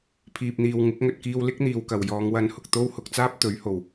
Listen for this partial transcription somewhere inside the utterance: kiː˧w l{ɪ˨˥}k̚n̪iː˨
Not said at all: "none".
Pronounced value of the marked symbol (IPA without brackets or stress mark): ɪ˥